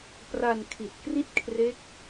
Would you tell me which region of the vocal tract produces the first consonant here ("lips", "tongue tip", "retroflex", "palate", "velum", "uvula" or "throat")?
lips